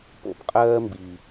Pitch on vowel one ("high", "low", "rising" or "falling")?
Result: low